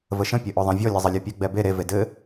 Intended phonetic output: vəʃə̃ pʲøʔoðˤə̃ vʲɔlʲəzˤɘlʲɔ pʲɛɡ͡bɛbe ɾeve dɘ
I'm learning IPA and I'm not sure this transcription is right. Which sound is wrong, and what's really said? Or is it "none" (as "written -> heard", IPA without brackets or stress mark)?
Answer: ø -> ɘ